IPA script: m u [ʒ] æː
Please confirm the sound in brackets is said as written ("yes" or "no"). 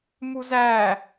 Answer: no